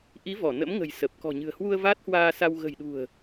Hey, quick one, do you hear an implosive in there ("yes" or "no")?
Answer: yes